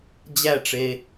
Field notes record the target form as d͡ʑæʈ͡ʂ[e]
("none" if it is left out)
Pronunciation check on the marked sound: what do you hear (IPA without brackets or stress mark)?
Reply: e